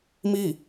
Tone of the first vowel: falling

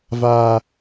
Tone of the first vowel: low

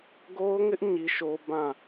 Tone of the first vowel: high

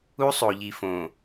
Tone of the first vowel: high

